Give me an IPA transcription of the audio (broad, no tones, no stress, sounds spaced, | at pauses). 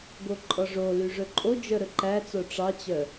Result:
ɡ o ǃʼ ɔ ʐ o l y ʐ ɵ ǃʼ o d͡ʒ œ ɾ ɵ ǃ æ t͡s o ʈ͡ʂ ɑ t͡ɕ œ